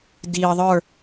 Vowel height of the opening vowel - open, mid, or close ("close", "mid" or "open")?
close